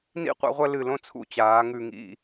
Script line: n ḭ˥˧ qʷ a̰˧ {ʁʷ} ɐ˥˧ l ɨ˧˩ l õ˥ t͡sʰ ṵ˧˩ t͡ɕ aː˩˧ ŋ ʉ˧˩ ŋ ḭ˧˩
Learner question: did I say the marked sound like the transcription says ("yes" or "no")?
yes